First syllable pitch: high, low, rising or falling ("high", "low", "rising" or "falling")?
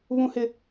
high